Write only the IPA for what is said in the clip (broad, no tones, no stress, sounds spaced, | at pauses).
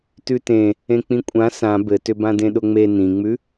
t ʉ t ẽ | ẽ k͡p ĩ kʷʼ ã s ã b ɘ t ʏ b ã d ẽ ɗ ʊ ŋ͡m e n ĩ ŋ͡m ʉ